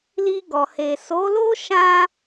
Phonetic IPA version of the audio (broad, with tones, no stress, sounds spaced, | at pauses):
l i˧ ɡ ɔ˨ h e˨ s o˨˦ l o˦ ʃ ã˧